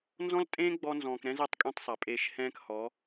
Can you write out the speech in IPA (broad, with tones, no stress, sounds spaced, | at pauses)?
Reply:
n z ɔ̃˦ l tʼ ẽː˦ ɡ͡b ɔ˧ n z ɔ̃ː˨ k ɾ ɛ̃˦ z ɛ˦ tˤ kʼ ẽ˦˨ tˤ sˤ a˨ pʼ eː˧ ʃ h ɛ̃ː˦ k h ɔ˨˦